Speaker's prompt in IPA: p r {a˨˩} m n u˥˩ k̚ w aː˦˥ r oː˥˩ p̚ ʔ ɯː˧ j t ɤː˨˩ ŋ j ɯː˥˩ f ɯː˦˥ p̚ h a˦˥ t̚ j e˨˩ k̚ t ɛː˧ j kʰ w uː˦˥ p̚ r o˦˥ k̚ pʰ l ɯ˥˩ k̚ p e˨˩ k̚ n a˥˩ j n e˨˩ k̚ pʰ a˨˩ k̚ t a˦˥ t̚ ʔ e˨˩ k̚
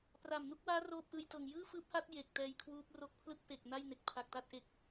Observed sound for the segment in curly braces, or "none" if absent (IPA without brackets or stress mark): a˨˩